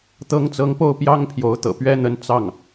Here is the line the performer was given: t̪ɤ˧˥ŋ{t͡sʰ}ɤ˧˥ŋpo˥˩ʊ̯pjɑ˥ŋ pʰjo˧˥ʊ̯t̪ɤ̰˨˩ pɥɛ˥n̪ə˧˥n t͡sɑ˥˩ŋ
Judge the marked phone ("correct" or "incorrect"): incorrect